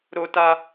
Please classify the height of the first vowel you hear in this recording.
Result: mid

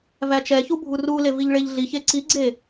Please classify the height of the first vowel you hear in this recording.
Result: low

